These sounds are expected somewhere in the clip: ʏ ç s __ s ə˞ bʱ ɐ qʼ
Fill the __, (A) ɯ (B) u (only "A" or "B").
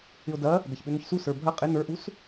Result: B